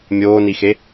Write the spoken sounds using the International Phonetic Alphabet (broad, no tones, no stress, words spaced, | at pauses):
mʲoːnixe